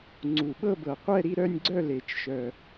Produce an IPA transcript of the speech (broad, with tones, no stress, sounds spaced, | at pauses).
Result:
ŋ͡ǀ u˨˩ ɓ ɤ˥˨ b ɤ˨˩ qʷ ɛ˥˨ ɾ i˥˨ ɾ œ˥˨ nʲ ɡ͡ǀ œ˥˨ l e˨˩˦ t͡ʃ ʃ œ˨˩